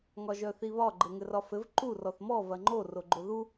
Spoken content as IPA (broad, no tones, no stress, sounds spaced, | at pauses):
ŋ ɒ ʒ œ θ i β ɒ ɡ͡ǃ ɘ ŋ ɘ r ɒ f ɘ v ǃ u r ɔ θ m ɔ v ɐ ŋ͡ǃ o r o ɡ͡ǃ o ð u